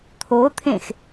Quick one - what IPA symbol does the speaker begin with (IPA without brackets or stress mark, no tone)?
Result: t̪ʰ